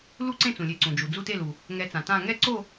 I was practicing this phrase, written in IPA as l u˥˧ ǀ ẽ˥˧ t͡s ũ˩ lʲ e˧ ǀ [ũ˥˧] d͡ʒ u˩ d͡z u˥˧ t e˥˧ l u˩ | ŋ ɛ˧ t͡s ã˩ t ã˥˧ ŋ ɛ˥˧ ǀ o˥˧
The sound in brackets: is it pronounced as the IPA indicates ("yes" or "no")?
no